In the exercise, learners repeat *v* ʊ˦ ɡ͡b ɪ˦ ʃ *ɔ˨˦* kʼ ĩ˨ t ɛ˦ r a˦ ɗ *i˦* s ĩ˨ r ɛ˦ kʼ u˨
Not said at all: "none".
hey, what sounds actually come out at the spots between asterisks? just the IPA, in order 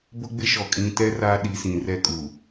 b, ɔ˨, i˨˦

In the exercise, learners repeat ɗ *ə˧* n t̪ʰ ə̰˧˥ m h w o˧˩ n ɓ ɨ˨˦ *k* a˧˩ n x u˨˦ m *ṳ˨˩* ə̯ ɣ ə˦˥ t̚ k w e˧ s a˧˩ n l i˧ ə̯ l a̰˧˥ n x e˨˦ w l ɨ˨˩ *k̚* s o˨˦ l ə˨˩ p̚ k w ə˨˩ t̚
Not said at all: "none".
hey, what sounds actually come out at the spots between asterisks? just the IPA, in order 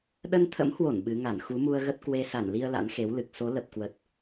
ə˧, ŋ, u˧, k̚

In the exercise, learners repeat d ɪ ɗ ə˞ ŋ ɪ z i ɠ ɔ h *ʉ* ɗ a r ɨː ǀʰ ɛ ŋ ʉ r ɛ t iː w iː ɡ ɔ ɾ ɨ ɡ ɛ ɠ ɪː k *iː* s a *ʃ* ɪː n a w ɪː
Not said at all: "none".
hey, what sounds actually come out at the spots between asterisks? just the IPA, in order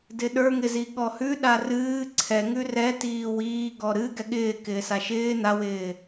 ʉ, ɪː, ʃ

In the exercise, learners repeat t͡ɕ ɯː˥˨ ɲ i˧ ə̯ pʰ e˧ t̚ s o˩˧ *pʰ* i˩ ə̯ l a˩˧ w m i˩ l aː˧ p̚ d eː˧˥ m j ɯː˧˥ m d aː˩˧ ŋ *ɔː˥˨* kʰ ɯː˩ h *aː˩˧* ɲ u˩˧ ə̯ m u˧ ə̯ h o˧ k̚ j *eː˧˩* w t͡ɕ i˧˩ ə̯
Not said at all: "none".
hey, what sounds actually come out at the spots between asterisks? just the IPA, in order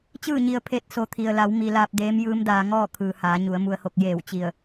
t̪ʰ, ɔː˥˨, aː˩˧, eː˧˩

